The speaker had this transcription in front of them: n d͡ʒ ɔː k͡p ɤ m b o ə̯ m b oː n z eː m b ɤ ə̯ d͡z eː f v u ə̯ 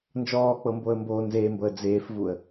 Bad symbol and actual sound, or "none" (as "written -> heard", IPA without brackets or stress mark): none